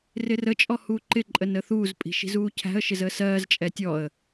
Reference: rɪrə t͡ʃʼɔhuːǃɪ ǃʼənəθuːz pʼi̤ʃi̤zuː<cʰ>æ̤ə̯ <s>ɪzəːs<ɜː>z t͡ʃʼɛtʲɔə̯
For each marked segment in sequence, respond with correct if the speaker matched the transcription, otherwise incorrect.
correct, incorrect, correct

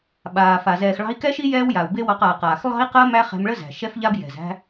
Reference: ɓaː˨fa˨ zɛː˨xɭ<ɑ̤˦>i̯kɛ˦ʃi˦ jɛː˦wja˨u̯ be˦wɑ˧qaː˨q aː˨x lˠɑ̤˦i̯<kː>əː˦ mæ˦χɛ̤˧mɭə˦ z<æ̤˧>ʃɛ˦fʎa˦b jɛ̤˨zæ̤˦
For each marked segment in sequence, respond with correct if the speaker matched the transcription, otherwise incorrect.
incorrect, incorrect, incorrect

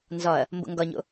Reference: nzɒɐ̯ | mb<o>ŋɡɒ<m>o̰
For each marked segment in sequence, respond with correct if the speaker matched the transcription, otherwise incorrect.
incorrect, incorrect

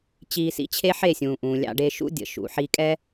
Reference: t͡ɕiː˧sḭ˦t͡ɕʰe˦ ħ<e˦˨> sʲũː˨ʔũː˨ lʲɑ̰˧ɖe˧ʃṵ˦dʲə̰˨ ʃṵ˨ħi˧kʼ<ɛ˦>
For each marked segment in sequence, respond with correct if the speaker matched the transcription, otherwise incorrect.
correct, correct

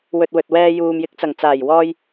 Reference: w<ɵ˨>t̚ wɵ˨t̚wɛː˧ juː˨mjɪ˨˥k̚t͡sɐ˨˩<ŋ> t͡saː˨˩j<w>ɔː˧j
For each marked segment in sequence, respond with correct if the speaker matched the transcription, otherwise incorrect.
correct, correct, correct

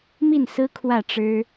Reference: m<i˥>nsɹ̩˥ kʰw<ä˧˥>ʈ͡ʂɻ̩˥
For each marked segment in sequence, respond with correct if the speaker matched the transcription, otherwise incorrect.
incorrect, incorrect

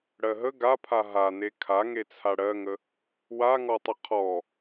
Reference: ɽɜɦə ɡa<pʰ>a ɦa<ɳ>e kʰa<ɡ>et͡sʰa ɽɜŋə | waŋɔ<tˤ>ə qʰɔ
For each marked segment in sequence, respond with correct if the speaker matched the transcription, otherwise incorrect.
correct, incorrect, incorrect, correct

